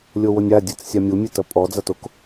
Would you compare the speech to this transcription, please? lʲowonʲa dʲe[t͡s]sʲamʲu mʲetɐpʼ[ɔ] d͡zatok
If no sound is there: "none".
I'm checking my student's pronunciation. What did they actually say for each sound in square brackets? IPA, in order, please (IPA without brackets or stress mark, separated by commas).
t͡s, ɔ